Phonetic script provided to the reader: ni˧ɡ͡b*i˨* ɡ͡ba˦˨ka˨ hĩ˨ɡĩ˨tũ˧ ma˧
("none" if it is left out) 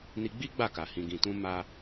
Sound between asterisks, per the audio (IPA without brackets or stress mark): i˦